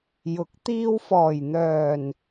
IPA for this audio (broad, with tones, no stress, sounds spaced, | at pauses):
j ʊ˨˥ k̚ t̪ iː˧ w f ɔː˨˩ j n̪ œː˨˩ n